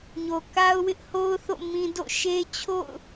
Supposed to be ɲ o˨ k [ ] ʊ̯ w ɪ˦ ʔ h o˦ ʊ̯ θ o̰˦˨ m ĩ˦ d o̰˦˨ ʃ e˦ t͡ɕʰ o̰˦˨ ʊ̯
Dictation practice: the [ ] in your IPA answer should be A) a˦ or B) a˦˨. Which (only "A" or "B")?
A